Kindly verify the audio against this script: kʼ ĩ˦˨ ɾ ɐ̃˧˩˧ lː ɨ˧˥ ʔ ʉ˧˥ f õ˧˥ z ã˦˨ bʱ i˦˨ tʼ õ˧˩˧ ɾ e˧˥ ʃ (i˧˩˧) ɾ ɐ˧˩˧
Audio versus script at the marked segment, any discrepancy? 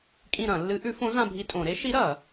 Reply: yes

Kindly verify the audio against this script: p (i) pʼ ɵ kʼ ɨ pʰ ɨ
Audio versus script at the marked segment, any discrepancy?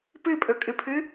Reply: yes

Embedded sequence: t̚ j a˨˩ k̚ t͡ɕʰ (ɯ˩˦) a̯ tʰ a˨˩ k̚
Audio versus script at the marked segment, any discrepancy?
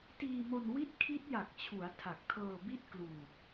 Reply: yes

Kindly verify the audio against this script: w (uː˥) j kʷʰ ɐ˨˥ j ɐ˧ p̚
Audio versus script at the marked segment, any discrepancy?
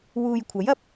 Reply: yes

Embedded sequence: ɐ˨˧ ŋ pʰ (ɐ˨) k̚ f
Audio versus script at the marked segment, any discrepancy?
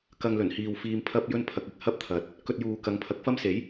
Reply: yes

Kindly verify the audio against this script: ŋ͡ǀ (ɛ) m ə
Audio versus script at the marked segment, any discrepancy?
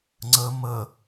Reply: yes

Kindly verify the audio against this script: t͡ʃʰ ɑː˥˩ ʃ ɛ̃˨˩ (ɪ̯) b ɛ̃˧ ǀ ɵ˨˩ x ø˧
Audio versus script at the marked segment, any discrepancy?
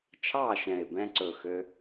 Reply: no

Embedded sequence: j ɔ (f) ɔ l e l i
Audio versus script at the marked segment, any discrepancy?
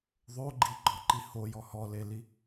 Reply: yes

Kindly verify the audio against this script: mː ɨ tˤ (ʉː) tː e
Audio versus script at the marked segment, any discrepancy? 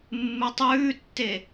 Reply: no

